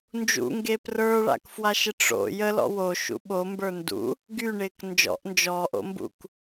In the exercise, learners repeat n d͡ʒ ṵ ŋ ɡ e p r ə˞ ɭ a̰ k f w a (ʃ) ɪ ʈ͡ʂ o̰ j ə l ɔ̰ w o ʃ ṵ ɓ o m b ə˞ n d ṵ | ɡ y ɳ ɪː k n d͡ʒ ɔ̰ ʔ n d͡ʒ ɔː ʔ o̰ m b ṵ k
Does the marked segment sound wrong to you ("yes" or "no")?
no